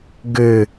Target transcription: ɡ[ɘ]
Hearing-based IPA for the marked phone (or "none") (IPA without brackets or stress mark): ɘ